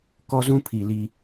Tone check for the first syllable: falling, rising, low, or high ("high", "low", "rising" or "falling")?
high